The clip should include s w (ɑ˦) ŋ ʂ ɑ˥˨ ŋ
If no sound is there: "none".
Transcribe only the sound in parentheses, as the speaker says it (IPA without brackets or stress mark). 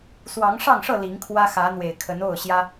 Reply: ɑ˨˦